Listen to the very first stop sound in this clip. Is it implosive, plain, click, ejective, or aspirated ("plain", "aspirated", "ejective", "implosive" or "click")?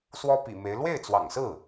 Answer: plain